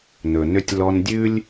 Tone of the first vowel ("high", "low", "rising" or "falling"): low